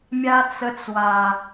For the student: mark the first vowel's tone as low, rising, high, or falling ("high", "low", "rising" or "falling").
high